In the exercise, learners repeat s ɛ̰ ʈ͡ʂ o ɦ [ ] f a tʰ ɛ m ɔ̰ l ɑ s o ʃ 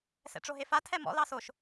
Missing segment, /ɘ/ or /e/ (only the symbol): e